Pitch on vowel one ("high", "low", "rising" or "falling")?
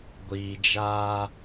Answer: low